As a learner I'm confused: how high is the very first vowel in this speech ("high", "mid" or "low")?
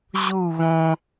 high